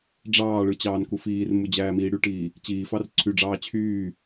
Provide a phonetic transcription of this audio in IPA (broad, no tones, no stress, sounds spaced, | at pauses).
ɖ͡ʐ ɑː ɭ ɯ t͡ɕ ɑː n k u f iː r m u d͡ʑ æː m iː ɽ y ʈ iː | t͡ɕ iː f ɑ r ǀʰ y ɖ͡ʐ ɑː t͡ɕʰ yː